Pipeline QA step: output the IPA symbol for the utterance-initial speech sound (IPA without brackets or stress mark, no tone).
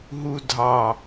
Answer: ɦ